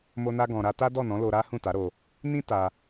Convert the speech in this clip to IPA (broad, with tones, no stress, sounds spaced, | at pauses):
m o˧ n a˧ ɡ ɔ̃˨ ɾ a˧ t a˦ d ɔ˦˨ n ɔ̃˨˦ l o˧ ɾ a˦ h ũ˦˨ t a˨˦ ɾ o˧ | n ĩ˦ t a˧